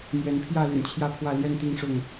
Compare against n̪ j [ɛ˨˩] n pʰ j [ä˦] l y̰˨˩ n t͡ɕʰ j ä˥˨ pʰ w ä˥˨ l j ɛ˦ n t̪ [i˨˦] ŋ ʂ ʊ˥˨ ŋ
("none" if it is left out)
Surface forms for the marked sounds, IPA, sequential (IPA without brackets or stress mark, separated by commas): ɛ˨˦, ä˥˨, i˦